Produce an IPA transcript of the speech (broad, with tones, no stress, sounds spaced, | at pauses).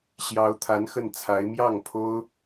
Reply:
ɕ j ɑ˧˥ ʊ̯ t̪ʰ a˧˥ n x ə˥˩ n t͡sʰ a˧˥ ɪ̯ m j ɑ˥˩ ŋ pʰ o˥ ʊ̯